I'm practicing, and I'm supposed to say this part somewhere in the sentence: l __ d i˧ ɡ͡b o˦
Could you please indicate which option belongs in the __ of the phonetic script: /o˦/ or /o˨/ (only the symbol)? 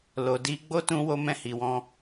o˨